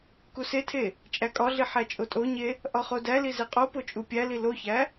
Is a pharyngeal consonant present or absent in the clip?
present